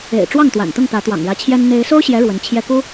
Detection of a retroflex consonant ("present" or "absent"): present